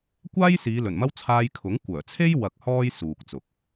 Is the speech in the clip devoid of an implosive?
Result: yes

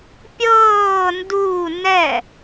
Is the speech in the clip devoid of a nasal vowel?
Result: yes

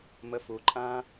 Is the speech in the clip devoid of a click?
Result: no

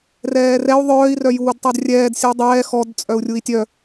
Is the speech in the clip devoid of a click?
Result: yes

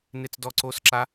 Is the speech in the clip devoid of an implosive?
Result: yes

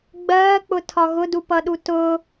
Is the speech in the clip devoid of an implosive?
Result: no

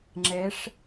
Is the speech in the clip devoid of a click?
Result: no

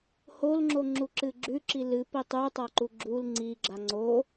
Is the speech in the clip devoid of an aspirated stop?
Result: yes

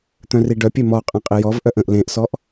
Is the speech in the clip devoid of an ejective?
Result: no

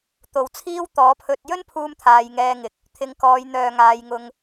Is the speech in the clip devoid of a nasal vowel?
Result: yes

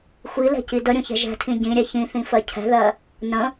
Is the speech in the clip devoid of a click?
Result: yes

